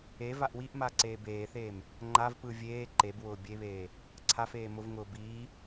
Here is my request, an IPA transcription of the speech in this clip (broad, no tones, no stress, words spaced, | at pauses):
e vaʔwiʔma ǀeːbeːθeːm | ŋ͡ǃav pɯ vʲeː ǃebwʊː bʲeβeː | ǀʰafeː mʊvŋʊː biː